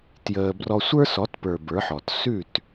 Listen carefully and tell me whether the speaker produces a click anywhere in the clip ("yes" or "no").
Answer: no